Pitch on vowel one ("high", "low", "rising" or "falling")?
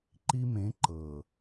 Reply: high